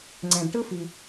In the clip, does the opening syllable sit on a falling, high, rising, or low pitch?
low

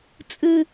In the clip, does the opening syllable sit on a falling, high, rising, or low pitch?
high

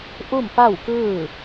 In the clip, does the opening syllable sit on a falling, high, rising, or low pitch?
falling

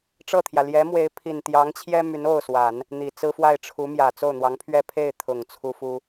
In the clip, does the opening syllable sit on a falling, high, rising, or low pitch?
falling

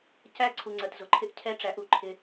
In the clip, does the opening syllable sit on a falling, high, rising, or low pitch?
high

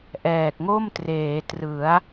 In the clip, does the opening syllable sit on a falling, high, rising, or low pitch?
low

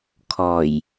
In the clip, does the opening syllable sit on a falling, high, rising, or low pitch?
low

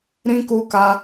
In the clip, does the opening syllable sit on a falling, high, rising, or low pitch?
high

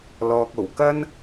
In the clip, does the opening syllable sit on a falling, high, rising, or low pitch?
low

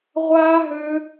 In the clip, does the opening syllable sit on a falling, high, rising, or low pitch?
high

